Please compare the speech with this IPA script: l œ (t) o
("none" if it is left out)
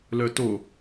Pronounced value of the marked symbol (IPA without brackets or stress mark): t